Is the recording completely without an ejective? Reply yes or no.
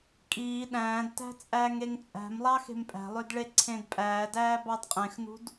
no